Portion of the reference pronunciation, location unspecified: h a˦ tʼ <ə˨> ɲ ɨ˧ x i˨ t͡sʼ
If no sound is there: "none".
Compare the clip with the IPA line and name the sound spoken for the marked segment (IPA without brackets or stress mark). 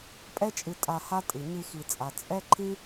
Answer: ɨ˨